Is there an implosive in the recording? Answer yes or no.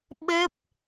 yes